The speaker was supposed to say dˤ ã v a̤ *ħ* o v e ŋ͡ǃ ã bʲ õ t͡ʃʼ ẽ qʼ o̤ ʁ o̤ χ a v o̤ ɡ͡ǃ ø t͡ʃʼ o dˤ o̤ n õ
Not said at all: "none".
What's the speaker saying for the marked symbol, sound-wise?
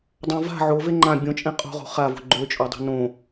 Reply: ʕ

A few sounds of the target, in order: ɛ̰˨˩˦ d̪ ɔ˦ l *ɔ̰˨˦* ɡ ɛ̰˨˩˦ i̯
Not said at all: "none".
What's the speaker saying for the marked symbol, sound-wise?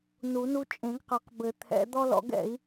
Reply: ɔ̰˨˦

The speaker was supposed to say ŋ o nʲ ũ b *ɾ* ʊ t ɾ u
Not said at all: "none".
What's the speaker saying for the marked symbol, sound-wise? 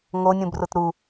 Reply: r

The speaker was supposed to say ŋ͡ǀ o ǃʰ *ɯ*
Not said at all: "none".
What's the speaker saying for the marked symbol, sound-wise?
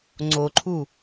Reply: u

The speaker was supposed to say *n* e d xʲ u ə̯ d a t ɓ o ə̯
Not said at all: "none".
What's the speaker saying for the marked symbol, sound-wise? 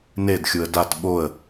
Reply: n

